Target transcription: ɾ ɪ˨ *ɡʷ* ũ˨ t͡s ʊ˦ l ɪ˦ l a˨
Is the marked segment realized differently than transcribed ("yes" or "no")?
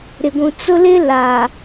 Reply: no